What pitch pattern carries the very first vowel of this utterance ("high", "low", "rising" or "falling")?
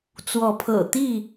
rising